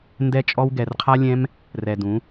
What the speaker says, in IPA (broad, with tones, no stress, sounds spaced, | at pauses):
n d ɛ˧ t͡ʃʼ ɔ˧ w ɡ ɛ˨ r qʰ a˦ lʲ ɛ̃˦ m | r ɛ˨ d ũ˨˦